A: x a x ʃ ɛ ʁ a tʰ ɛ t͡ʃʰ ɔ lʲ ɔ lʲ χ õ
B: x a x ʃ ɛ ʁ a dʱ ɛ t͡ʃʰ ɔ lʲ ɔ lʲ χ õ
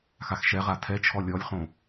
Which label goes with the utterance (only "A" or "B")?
A